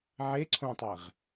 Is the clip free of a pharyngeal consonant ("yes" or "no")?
no